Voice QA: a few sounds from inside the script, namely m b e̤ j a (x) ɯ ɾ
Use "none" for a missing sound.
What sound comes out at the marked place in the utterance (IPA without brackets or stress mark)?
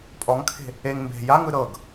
ŋ